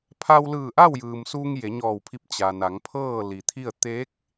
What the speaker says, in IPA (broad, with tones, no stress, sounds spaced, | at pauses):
pʰ a˧ w l ɯː˧˩ ʔ a˥˨ w j ɯː˩ m s uː˧ ŋ j e˩˧ ɲ ɔː˧˩ w pʰ i˧ p̚ t͡ɕ a˩ n a˩˧ ŋ pʰ ɤː˥˨ l i˩ t̪ʰ i˥˨ ə̯ t̪ e˧˥ k̚